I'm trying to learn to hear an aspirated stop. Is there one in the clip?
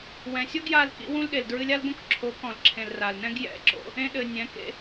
yes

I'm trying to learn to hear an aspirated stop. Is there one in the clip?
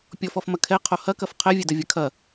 yes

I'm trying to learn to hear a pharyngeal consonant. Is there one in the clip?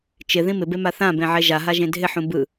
yes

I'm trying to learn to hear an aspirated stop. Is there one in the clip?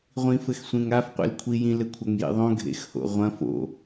yes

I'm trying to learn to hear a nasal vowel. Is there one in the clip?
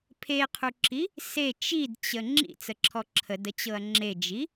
no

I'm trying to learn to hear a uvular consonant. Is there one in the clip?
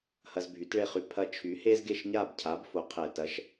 yes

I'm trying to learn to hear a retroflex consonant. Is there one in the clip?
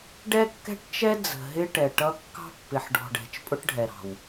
yes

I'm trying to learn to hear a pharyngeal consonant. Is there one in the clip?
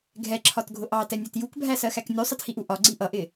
no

